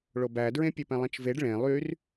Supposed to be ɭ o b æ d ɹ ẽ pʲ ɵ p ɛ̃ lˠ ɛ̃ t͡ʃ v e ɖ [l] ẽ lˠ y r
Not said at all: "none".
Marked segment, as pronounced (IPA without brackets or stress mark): ɭ